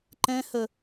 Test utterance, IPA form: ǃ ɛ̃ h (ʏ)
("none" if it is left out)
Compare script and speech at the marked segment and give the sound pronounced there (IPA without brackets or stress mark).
ə